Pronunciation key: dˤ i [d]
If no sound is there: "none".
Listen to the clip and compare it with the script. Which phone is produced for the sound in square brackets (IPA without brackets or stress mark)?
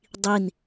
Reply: n